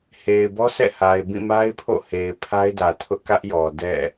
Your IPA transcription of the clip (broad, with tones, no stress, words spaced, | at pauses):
he˨ɪ̯bɔ˦sɛ̰˦˨ ha˨ɪ̯ bĩ˦˨ma˦ɪ̯pʰo̰˦˨he˨ɪ̯ pʰa˦ɪ̯dä˨ tʰʊ˦ʔkä˦ʔjɔ˨ dɛ̰˦˨